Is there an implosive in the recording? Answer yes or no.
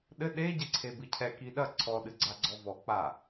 yes